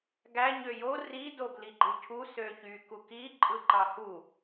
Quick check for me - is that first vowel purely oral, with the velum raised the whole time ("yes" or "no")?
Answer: yes